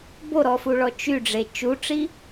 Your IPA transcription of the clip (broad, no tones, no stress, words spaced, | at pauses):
boɾɔfuɭɔ t͡ʃyɖ͡ʐe t͡ʃuʈ͡ʂi